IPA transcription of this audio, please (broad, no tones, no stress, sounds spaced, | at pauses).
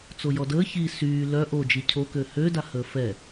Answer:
t͡s o j ɔ d əː ç i s yː l œ ʔ o d͡ʒ i cʰ o k ø h ø d a h əː f ɛ